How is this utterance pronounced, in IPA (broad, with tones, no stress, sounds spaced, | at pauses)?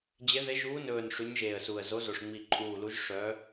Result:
d͡ʑ e˨˦ ð e˨˦ ʒ uː˨˦ n ɵː˨˩ n ʂ ʉ˨˦ ɲ ʒ eː˨˩ ə̯ s u˨˩ ə̯ z o˨˦ z o˨˩ ʂ ŋ͡m i˨˩ ǃʼ uː˨˩ l u˨˦ ʒ ʂ œ˨˦